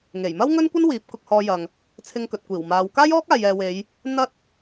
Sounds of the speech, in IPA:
ŋ e˨˩ j m ɐ˥ w ŋ ɵ˥ n kʷ ɐ˥ n w iː˨˥ p̚ k ʊ˧ k̚ h ɔː˧ j ɐ˨ ŋ | t͡sʰ ɪ˧ ŋ k ɵ˨ t̚ kʷ iː˨˩ w m aː˨˧ w k aː˥ j ɔː˥ k̚ aː˨ j ɛː˨ w e˨˧ j | n̪ ɐ˥ t̚

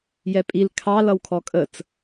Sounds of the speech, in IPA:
j ɛ pʼ i l kʰ ɑ l ʌ w kʰ ɔ kʼ ə t͡s

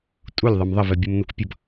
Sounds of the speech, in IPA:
tʼ u lʲ ðˤ ʌ m ðˤ ə v ɛ bʲ u m n u kʷ pʲ ʌ b

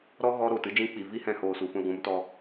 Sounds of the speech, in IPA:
ɾ ɔ˦ ɣ ɔ˦ ɾ oː˨ t ɨ˦ d͡ʒ ĩ˧ k͡p i˨ v i˦ h ɛ̃˧ h oː˧ s u˨ f ũ˧ l ɡʷ ũ˨˦ m t ɔ˧

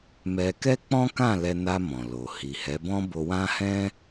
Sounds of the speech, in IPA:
m ɛ˧ k ɛ˦ k͡p ɔ̃˦ k ã˦˨ l ɛ˧ n a˧ m ɔ̃˨ l o˨ h i˨ h ɛ˨˦ b ɔ̃˦ b o˧ w ã˦ h ɛ̃˦

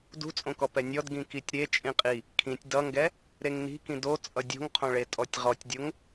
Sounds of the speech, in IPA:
d ṳ t͡sʼ õ k ɔ p ɛ nʲ ɔ d ɡ ĩ k i tʲ ɾ e t͡ʃʼ ĩ qʼ i | kʰ ĩ tʲ d ʌ ŋ ɡ ɛ | ɾ e ŋ n i̤ k ĩ d o t͡sʼ ʌ dʲ o̤ ŋ qʰ õ ɭ e tʼ ɔ tʲ ʁ ɔ tʲ dʲ o ŋ

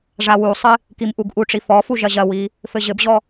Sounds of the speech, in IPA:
ʐ a w u sˤ ɨ | k i m ʔ u ɡ ʔ u ʈ͡ʂ i f ɔ f u ʒ ɐ ʑ ɐ w i | f ɘ ʑ ɘ b ʑ ɔ

